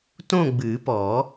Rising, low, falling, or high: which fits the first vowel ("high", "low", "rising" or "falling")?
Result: falling